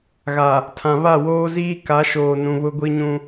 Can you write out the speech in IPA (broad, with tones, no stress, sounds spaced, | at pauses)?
ɣ a˨ | tʰ ã˨ β a˦˨ w oː˦ z iː˦ k a˨˦ ʃ oː˨ n ũ˨ β ʊ˦ ɡʷ i˦ ɲ ũ˦